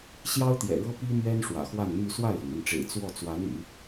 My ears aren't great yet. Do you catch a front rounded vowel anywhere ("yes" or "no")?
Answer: yes